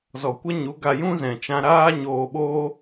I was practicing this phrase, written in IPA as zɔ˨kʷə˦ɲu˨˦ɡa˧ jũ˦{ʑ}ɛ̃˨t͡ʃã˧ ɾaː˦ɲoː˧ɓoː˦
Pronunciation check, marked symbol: incorrect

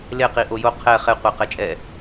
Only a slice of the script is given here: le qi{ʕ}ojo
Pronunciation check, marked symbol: incorrect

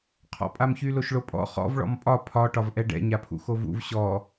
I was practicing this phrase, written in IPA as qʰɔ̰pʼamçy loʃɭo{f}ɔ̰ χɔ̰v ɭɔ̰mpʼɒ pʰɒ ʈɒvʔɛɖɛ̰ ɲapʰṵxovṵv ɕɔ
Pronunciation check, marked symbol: incorrect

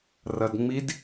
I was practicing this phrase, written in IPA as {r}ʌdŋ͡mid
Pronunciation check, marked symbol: correct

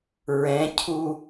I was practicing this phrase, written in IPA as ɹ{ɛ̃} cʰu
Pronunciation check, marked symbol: correct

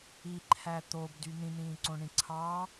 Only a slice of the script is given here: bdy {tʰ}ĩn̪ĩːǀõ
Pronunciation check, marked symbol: incorrect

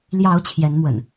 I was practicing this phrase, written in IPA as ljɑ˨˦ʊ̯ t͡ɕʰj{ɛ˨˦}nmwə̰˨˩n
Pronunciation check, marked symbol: correct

